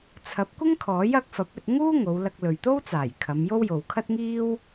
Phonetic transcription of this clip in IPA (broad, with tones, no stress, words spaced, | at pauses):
t͡sʰɐ˨˥p̚kʷɪ˥ŋkʰɔː˨˥j ɐ˨˥k̚fɐ˨˥p̚ɵ˧t̚ŋuː˥ ŋo˨˧wlɐ˧k̚ lɵ˨ɥt̪o˥wt͡saː˨˩j kʰɐ˨˧mjo˥w jo˨wkʰɐ˥t̚ŋiː˥w